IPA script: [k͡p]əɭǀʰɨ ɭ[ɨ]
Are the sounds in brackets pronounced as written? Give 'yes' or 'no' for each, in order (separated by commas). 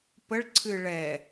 no, no